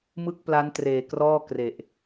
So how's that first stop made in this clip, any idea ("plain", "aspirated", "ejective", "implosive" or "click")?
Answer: plain